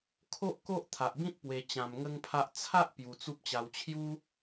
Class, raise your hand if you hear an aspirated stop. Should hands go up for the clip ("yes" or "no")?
yes